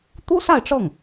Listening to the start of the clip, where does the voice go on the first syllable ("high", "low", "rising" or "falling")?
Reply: high